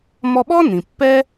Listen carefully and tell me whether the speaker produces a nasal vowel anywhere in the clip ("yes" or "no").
yes